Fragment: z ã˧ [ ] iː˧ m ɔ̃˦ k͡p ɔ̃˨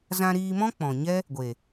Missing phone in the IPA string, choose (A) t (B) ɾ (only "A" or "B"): B